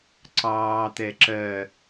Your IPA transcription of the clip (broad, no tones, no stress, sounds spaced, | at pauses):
ǀ ɑː t̪ ɛ ǁ ɜ